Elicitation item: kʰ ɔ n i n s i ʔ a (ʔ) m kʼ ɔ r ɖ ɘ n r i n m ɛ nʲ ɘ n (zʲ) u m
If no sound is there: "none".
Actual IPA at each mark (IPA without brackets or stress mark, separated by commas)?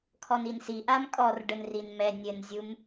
none, zʲ